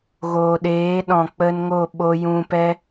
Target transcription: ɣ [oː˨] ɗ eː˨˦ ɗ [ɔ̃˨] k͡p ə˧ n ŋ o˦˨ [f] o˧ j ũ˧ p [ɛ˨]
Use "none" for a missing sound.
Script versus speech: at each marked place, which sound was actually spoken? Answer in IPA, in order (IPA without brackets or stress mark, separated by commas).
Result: oː˨, ɔ̃˨, ɓ, ɛ˦